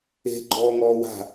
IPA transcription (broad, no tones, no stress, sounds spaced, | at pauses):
e̤ ɡ͡ǃ ɔː ŋ ɔː w a̤